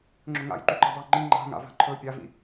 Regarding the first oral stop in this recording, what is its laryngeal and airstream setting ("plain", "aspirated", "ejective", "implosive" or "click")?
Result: click